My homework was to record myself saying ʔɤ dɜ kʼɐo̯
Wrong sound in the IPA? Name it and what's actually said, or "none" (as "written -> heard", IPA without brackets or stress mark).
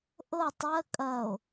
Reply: d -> tˤ